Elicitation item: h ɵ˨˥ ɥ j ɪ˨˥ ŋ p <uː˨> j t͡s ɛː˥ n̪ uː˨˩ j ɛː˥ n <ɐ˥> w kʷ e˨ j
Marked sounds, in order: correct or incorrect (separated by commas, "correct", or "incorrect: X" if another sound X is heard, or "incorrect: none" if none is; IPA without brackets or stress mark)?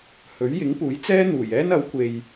incorrect: uː˨˥, incorrect: ɐ˨˥